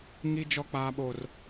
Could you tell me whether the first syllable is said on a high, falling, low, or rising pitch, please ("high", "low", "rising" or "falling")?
high